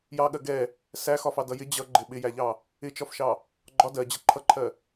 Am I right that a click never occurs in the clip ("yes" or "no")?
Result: no